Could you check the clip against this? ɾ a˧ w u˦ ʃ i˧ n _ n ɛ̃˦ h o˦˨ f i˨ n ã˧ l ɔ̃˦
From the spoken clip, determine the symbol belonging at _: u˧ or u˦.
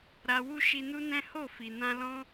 u˦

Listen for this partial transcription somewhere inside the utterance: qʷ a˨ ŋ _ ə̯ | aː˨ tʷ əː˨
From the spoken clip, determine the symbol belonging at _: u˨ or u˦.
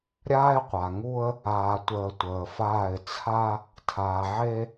u˦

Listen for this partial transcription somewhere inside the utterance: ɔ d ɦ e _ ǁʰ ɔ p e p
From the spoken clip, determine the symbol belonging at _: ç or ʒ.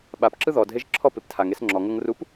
ʒ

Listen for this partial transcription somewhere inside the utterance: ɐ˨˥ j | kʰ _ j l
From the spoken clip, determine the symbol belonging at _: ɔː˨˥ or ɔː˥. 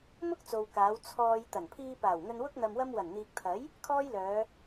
ɔː˥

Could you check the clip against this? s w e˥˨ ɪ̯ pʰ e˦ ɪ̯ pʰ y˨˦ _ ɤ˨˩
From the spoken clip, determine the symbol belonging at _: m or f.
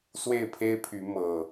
m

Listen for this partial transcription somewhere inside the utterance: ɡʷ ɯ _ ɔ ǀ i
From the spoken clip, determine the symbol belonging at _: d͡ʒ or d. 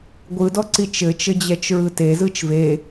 d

